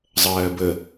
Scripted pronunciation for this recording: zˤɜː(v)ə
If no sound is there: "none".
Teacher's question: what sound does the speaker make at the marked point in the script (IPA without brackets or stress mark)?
b